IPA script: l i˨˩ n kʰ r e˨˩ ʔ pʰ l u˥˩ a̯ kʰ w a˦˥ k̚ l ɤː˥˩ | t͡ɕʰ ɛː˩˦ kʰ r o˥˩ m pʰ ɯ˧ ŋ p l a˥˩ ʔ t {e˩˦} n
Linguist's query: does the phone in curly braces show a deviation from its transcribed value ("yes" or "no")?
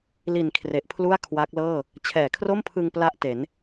no